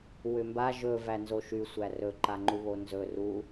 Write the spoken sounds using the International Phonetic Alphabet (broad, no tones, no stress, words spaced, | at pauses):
wʏmba ʒɵ vænzoʃy sʷærɵ ǃaŋ͡ǃuβonzɵ ru